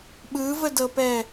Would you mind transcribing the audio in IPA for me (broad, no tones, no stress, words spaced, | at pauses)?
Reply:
ɓɯvədɤpɛ